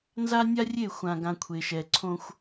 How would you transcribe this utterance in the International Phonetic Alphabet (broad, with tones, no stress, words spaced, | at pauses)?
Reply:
nza˦nʲa˦ rʲe˦˨xʷã˨ɡã˨ kʷʰe˨ʃɛ˨ ǀʰõ˦xʷ